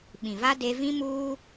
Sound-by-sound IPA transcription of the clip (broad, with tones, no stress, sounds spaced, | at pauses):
ɓ ĩ˨ v a˦ d e˦ v ĩ˦ m uː˦